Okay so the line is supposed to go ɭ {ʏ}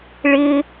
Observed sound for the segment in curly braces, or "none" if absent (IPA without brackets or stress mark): ɪ